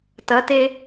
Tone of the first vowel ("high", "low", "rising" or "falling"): rising